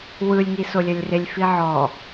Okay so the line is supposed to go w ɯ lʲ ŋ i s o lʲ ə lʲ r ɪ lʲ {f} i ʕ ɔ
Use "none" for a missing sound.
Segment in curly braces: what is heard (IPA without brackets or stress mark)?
f